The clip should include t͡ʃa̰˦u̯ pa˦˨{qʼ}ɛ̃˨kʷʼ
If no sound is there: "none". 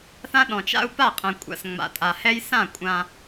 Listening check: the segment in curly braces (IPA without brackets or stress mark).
qʼ